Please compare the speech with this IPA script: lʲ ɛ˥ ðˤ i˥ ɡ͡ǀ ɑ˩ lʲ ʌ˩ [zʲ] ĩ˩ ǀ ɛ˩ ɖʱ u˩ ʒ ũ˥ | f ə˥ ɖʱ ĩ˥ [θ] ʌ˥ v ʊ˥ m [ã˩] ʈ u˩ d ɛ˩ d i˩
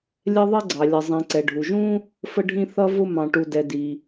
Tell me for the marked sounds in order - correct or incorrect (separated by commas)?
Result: incorrect, correct, incorrect